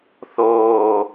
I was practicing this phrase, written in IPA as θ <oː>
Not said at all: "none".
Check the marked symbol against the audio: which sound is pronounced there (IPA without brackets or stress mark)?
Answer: oː